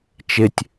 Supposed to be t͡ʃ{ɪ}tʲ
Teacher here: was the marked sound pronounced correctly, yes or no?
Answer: yes